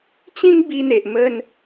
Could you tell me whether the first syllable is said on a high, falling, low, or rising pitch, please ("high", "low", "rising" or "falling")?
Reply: high